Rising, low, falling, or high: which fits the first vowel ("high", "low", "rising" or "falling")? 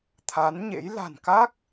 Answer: rising